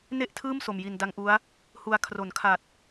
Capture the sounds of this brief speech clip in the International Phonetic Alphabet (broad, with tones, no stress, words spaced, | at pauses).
ne˥˩ʔtʰɯː˥˩mso˨˩mji˨˩n da˦˥ŋʔu˦˥a̯ | hu˧a̯ kʰro˩˦nkʰa˨˩t̚